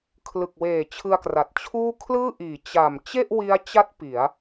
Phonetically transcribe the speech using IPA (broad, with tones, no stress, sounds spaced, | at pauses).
kʰ l ɯ˨˩ k̚ w eː˨˩ t͡ɕʰ ɯ˧ a̯ k r a˨˩ t̚ t͡ɕʰ uː˥˩ kʰ l ɯː˥˩ ʔ iː˩˦ t͡ɕ a˨˩ m t͡ɕ e˥˩ ʔ w i˦˥ a̯ t͡ɕ a˦˥ t̚ p i˩˦ a̯